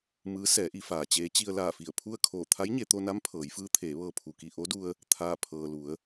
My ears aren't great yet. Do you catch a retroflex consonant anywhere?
no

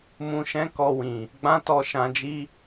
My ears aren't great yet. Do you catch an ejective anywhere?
no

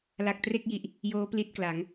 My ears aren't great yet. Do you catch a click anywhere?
no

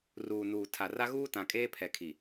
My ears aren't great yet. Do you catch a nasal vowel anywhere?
yes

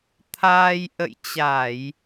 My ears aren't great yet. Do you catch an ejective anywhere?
no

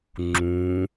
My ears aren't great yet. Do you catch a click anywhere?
yes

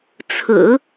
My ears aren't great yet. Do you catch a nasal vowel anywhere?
no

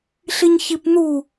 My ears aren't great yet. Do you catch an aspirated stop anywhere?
no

